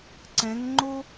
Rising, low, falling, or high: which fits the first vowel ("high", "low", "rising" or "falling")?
rising